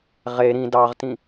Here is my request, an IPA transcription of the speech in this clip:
ʁ e ɾ ĩ d ɑ ʁ t ĩ

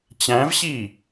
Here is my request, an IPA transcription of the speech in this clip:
t͡ɕ æ̃ v ɕ i

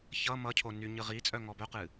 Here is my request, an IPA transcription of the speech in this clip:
ç ʌ m ʌ cʰ o n y ɲ ɨ ʁ i t͡sʼ œ ŋ ɔ b œ q ɨ

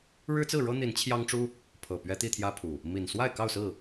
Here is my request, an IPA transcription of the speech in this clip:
ɻ ɻ̩˦ t͡s ɹ̩˥˨ ɻ ɤ˦ n̪ i˨˦ n t͡ɕʰ j ɑ˦ ŋ ʈ͡ʂ u˦ | pʰ ɤ˨˩ p ɥ ɛ˦ t̪ i˥˨ t̪ʰ j ä˦ pʰ u˨˩ | m i˨˩ n s w a˥˨ ɪ̯ k ɑ˥˨ ʊ̯ s ɹ̩˥˨

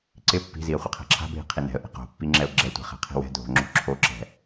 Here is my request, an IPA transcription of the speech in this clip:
ǀ ɪ pː i̤ z i ə̯ χʷ ɪ qʰ ɛ̤ ǁʰ a̤ bʱ i̤ qʰ i n ɛ̤ ə̯ ʔ i̤ q o̤ pː i ŋ͡ǁ ɛ ʊ̯ ɡ͡ǁ ɛ tʷ ɛ̤ χ ɛ̤ qʰ i̤ w ɛ̤ dʱ o̤ ŋ͡ǁ o̤ ǁʰ o ǁ ɛ̤

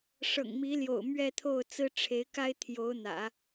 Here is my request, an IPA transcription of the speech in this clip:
ʂ ɤ̰˨˩ ŋ m i˧˥ l j o̰˨˩ ʊ̯ m ɥ ɛ˥˧ t̪ʰ o˥˩ ʊ̯ t͡s ɹ̩˥ ʈ͡ʂʰ e˧˥ ɪ̯ k a˥ ɪ̯ t̪ʰ j o˧˥ ʊ̯ n̪ ä̰˨˩˦

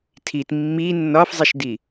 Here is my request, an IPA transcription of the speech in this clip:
tʰ i t mː i nː ɒ f zˤ i ʃ d i

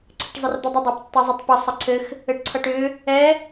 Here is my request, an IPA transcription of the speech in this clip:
ǀʰ ə ʈ zˤ ɘ r d̪ ʌ dˤ ʏ dˤ a p tː ʌ zˤ ɛ tˤ p ʌ sˤ ə ǀʰ ɘ x | ɘ ʈ ǀʰ ʌ ʈ ʏ | ɛ

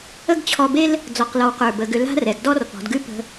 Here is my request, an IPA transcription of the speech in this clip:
ə˥ ɡ t͡ɕʰ ɔ˧ b e˥ l | d͡z ɔ˧ q l ɔ˧ w q ə˞˧˩ b ə˩˧ ɡ ʏ˧ l a̤˥ r ɛ˩˧ ɡ d ɔ˥ r p ɔ̤˩˧ d ɡ ʉ˥ p ə̤˧

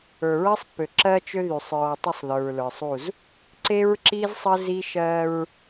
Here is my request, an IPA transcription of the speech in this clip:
ə˞˨ ɹ ɜ˦ sˤ pː ø˨ ǁ ɜ˦ t͡ʃ ø˦ ð y˨ sˤ ɹ ɔ˨ tˤ ə˦˨ sˤ ð ə˞˨ ɹ l ə˞˨ sˤ u˦˨ z | ǀ e˦ ɹ ǁ i˦ z sˤ ə˦ z i˦ ʃ ɜ˦ ɹ

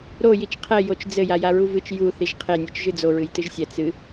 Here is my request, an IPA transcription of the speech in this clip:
ɾ o j i t͡ʃ qʰ ɛ j o t͡ʃ d͡z ɘ j a j a ɹ u v ɨ t͡ʃ j u θ i ʒ qʰ e nʲ e t͡ʃ ʒ ɨ d͡z o ɹ ɨ j t ɨ ʒ sʲ ɛ t͡s ɨ

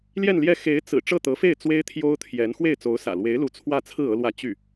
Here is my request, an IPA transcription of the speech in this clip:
l j ɛ˥˧ n l j ɛ˥˩ x e˧˥ ɪ̯ t͡s ɹ̩˨˩ ʈ͡ʂ ɤ˥˩ t̪ ɤ˧˥ f e˥˩ ɪ̯ t͡s w e˥ ɪ̯ t̪ʰ j o˥ ʊ̯ t̪ʰ j ɛ˧˥ n x w e˥˩ ɪ̯ t͡s o˧˥ ʊ̯ s ä̰˨˩ l w e˧˥ ɪ̯ l u˧˥ t͡sʰ w ä˥˧ t͡sʰ ɹ̩˥˩ ɤ˥ l w ä˥˧ t͡ɕ y˥˩

